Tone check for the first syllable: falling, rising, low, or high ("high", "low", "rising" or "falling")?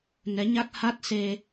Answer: rising